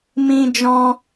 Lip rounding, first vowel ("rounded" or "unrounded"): unrounded